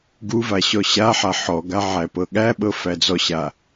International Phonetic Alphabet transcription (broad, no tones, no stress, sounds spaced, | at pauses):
ɡ u v a ɕ ɔ ɕ a ħ a ħ ɔ ɡ a ʕ æ p ɤ ɠ æ ɓ ɤ f æ d͡z ɔ ɕ a